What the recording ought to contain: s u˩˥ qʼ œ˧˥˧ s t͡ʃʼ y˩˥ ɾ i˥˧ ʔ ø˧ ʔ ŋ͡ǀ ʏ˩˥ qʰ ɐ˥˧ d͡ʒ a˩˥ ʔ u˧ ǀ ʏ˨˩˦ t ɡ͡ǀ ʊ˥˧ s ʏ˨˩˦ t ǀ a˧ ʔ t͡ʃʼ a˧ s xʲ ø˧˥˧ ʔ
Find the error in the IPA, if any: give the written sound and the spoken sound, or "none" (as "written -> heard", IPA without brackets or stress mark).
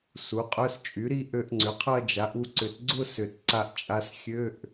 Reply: none